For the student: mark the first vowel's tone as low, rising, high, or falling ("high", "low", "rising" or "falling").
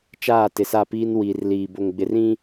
falling